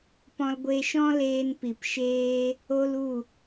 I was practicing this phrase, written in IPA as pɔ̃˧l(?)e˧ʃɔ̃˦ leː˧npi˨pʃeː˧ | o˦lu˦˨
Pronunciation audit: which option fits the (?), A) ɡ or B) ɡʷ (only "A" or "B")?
B